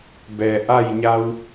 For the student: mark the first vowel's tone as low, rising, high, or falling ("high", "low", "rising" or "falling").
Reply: low